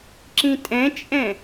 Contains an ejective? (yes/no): yes